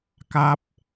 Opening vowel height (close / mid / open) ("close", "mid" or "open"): open